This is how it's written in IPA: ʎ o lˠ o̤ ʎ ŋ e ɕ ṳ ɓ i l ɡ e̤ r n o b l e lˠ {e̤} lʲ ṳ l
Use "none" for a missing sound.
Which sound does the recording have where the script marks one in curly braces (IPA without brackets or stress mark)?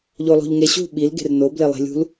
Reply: e̤